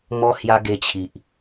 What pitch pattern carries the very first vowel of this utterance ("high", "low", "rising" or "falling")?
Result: high